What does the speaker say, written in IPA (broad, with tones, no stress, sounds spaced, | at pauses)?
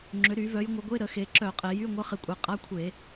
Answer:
ŋ͡ǁ ʏ˩˧ ɾ y˧˩˧ v œ˩˧ j ŋʷ ə˩˧ ɡʷ e˧˥˧ ɾ ə˧˩˧ x e˩˧ ǁ œ˧˩˧ qʼ e˩˧ j y˧˥˧ ŋʷ ə˧˥˧ χ ɪ˧˩˧ kʷʼ e˩˧ qʼ a˧˥˧ kʷʰ e˧˩˧